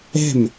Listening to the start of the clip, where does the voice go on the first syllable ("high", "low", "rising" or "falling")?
falling